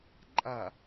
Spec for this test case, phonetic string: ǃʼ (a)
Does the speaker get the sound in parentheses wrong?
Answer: no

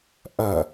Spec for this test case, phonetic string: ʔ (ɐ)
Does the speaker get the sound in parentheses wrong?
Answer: no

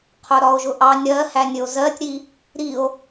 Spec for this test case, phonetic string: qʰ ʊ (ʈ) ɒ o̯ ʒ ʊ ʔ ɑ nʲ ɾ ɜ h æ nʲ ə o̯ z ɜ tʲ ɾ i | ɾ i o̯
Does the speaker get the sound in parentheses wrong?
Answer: yes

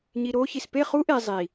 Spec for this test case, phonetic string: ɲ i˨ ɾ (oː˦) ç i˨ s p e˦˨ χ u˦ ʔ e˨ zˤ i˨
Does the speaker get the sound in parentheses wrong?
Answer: no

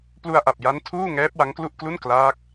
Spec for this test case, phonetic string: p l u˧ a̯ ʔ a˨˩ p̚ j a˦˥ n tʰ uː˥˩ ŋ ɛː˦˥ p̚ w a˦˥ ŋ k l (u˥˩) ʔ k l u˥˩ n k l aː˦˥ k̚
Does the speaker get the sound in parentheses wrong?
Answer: no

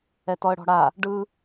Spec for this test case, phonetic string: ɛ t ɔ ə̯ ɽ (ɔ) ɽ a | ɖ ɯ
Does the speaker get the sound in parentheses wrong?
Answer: yes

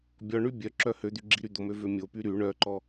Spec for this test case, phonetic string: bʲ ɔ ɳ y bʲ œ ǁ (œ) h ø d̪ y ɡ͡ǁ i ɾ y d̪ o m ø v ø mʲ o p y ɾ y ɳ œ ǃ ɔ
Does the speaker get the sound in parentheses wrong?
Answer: no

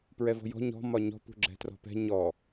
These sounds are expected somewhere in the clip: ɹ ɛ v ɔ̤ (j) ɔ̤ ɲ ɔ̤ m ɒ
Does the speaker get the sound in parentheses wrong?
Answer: no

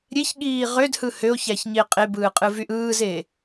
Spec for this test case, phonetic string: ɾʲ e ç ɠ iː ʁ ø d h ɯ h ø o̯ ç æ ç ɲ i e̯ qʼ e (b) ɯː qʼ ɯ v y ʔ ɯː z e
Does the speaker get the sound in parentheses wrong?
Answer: no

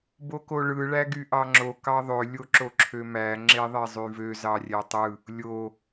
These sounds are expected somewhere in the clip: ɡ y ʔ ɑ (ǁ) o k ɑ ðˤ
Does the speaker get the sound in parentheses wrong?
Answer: yes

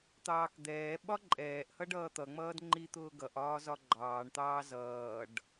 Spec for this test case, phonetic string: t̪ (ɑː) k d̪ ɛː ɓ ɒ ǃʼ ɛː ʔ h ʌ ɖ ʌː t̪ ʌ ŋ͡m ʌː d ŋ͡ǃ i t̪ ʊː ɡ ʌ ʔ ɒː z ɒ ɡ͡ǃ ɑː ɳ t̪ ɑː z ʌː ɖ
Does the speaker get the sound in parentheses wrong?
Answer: no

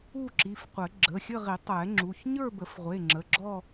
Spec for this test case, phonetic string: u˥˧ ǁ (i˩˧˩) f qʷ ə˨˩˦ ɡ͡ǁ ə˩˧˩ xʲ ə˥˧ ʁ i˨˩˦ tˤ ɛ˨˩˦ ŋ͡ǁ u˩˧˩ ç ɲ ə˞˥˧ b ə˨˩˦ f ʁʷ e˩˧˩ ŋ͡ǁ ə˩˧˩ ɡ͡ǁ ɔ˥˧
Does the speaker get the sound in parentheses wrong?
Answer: no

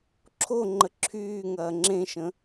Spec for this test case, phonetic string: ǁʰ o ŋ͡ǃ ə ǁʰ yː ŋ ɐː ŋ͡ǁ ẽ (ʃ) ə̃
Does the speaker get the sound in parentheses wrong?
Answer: no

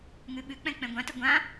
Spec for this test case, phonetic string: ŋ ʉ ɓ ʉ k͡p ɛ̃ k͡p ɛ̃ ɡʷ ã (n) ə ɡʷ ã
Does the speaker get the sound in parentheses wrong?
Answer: yes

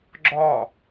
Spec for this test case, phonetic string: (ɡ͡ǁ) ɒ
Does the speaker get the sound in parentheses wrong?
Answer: no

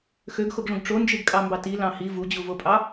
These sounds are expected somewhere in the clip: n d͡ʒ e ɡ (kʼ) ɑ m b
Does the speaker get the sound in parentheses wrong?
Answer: no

